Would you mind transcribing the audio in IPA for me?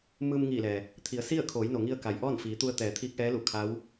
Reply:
m ɯː˧ m ŋ iː˧˩ l ɛː˩ | t̪ʰ i˩˧ ə̯ s i˥˨ ə̯ kʰ oː˩˧ j n o˩ ŋ i˧ ə̯ k a˩ j ʔ ɔː˥˨ n f iː˩˧ t̪ u˧ ə̯ t̪ ɛː˩˧ t̪ʰ iː˧˥ k̚ ʔ ɛː˧˥ l u˧˩ kʰ a˧˥ w

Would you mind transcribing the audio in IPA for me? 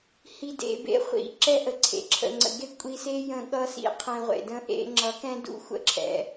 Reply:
h i˨ d ḛ˨ b ḛ˨ χʷ ḭ˨ ǁ ɛ˦ ʔ ə˨ ǀʰ ḛ˨ ǁʰ ə̰˨ ŋ͡ǀ ə̰˨ ɡ e˦ kʷʼ i˧ s e˦ j ə̃˧ ɠ ʌ˦ s ḭ˦ qʰ ɛ̃˧ ʁʷ ḛ˨ d ə̃˦ ʔ ḛ˦ ŋ͡ǁ ʌ˨˦ k ɛ̃˦ d ṵ˦˨ xʷ ə̰˦˨ ǁʰ ɛ̰˧

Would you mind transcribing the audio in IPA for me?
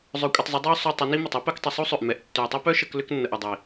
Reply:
zˤ œ˧ kʷʼ ɐ˧ tˤ zˤ ʏ˨˦ dˤ œ˦ ʊ̯ sˤ y˧ tˤ ʏ˨˦ n i˦ m ɐ˨ tˤ u˦ p ɛ˧ k tˤ ʏ˧ sˤ u˦ sˤ ø˨ ʔ m ɛ˨˦ ʔ tː ʏ˨ ʊ̯ tˤ ø˦ p œ˦ ʃ ə˧ k l ʏ˦ k nː ə˨ ʔ ʏ˨ dˤ i˨

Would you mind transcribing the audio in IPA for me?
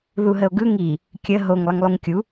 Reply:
ð u ɦ ə o̯ ɡ ɯ ŋ i | kʲ ə ɦ o ŋ lˠ ə ŋ lˠ u ŋ kʲ u

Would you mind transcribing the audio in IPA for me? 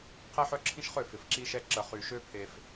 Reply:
qʰ e˦ ħ œ˦ ǁʰ ĩ˦ ʃ χ ø˦˨ f ɪ˨ f ǁ i˦ ʃ ɛ˦ ǁ ə˨ χ y˨ ʃ ø˦ pʰ e˦ f

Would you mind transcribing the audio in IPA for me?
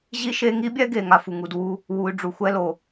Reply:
ʑ i˦ ʃ e˧ ŋ i˦ bʲ ɛ˦ ɡ e˨ ŋ a˦ f u˨ ŋ u˧ d w u˦ | w u˧ y̯ ɖ͡ʐ u˨ xʷ ɛ˦ l o˨

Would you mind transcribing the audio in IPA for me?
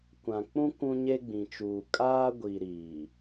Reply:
kʷ ã˨ k͡p ũ˦ kʷ ũ˦ ɲ e˦ ɡ͡b ĩ˨ t͡ʃ uː˨ kʼ aː˦ ɡʷ i˨ ɾ iː˨

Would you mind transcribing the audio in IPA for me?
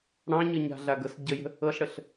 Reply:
ɽ ɑ̃ ɲ ɤ ɲ a̤ ɮ a ɡ ɤ s ɟ ə j ə̤ | ɤ ɬ ɽ ə ɬ

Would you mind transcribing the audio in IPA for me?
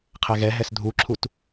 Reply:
qʰ ɛ ɣ ɛ ɦ ɛ s dʱ u ǁʰ u t

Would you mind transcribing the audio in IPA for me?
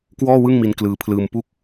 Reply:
k w ɔː˥˩ w ɯ˥˩ ŋ m i˧ n k l ɯː˧ pʰ l ɯː˧ m p u˥˩ k̚

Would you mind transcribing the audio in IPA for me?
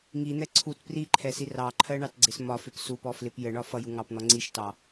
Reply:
ŋ i n̪ ɛ ǀʰ u t p r i ǃʰ ɛ s i r ɑ ǃʰ ɜ ɳ ɑ t ɡ͡ǀ ɪ s m ɒ f ɪ p s u p ɔ f l ɪ p j ə ɳ ɒ f ʌ j u ŋ ɑ p n̪ ɔ ŋ͡ǀ i ʃ t ɑ

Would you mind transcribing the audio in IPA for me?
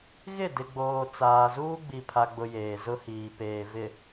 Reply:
ɣ ɪ˦˨ d ɪ˨ ɡ͡b oː˨ t͡s aː˨ z uː˦ ɡ͡b i˨ pʰ a˨ ɡ͡b ʊ˨ j eː˨ z ʊ˦ h iː˨ p eː˨ v ɪ˨

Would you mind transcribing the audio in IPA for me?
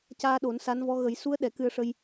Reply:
c aː˧ ɗ o˨˩˦ n s a˧˥ n v ɔ˧˥ ɣ ə˨˩˦ j s u˧˥ ə̯ ɗ ɛ˨˩˦ k ɨ˧ ə̯ ʂ ə˧ j

